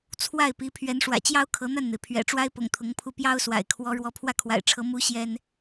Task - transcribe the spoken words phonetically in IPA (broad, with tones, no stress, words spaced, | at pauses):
t͡sʰwa˥˩ɪ̯pi˧˥ pʰɥɛ˧˥nʂwä̰˨˩t͡ɕjɑ˥ʊ̯ kʰɤ˧˥n̪a˥˩nn̪e˩ɪ̯ pʰɥɛ̰˨˩ʈ͡ʂwa˥ɪ̯pʊ̰˨˩ŋ t̪ʰʊ˧˥ŋpʰu˥˩ pjɑ˥ʊ̯swa̰˨˩ɪ̯kʰwɔ˧˥ ɻwɔ˧˥pʰwä˥˩kʰwa̰˨˩ɪ̯ʈ͡ʂʰɤ˧˥ mu˧˥ ɕjɛ˥n